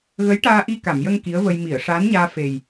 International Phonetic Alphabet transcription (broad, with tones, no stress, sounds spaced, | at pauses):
ɣ ə˧˥ j ʈ aː˧ ʔ i˧ k a˨˩˨ m j ə˧ ŋ k i˧˥ ə̯ v ə˧ j m i˨˩˨ ə̯ ʂ aː˧˥ n ɲ aː˧ f e˨˩ j